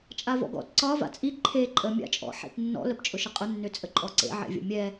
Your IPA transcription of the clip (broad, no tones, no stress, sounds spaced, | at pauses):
t͡ʃʼ a v ɔ̰ ɡ ɔ̰ t ǀ ɒ v a̰ t͡sʼ i ǃʰ e ǃʼ ə mʲ a̰ t͡ʃʼ ɔ̰ ħ ḛ t nː ɔ̰ l ə p t͡ʃʼ ʊ ʃ ə qʼ ʊ nː ø t͡sʼ ə ǃʼ ɔ ǀ ḛ ʕ ḛ vʲ ə̰ mʲ ɛ